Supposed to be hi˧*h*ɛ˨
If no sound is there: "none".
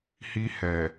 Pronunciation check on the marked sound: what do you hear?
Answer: h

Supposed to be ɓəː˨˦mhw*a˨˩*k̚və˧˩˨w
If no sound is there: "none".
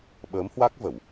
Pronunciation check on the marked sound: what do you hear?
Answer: a˦˥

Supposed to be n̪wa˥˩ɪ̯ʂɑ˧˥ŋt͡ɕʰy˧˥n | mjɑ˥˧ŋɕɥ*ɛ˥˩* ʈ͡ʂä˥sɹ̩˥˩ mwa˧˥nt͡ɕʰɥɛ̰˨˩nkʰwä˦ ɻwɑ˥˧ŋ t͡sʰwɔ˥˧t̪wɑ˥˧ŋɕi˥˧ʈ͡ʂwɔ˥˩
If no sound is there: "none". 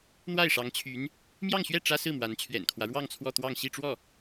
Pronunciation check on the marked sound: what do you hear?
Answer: ɛ˥˩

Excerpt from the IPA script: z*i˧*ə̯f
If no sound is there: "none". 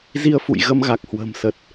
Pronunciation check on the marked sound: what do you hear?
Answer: i˧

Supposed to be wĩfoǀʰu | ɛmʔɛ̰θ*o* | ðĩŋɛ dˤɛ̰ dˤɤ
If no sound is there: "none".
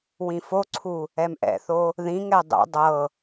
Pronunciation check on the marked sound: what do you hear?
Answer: o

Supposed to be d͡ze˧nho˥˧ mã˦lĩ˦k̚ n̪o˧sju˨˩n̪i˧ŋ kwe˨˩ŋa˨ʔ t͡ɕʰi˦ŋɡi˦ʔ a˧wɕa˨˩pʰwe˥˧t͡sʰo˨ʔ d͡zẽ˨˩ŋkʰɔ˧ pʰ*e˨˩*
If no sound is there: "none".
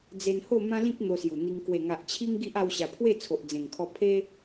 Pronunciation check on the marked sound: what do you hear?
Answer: e˦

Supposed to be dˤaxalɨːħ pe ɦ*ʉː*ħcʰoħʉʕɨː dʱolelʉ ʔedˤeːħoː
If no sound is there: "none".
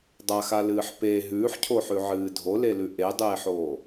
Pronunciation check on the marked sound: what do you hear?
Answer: ʉː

